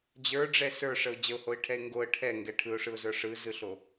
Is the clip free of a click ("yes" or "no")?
yes